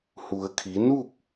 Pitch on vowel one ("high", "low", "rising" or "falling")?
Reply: low